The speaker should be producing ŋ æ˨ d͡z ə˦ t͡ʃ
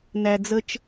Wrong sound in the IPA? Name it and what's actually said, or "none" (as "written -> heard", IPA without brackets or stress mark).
ŋ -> n